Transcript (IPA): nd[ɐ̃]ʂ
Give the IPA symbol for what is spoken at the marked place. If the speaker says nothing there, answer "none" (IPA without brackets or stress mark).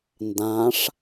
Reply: ã